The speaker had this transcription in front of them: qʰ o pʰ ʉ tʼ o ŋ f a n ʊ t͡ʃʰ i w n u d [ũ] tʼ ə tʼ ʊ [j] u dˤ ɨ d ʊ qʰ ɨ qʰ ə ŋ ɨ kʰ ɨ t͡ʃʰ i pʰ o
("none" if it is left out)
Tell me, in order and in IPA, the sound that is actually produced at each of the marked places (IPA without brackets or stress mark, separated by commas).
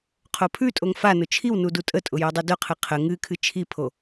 u, j